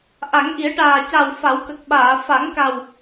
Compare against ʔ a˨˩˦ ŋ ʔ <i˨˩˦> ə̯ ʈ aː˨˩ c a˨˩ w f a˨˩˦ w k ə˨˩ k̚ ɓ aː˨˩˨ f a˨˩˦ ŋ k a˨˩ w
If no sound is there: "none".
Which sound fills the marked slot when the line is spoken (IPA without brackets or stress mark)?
i˨˩˦